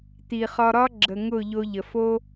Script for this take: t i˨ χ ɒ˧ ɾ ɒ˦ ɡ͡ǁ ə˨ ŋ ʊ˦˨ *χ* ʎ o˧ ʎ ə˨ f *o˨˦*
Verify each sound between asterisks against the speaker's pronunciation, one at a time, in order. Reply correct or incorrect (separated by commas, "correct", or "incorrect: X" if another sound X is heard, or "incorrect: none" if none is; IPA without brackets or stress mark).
incorrect: none, incorrect: o˦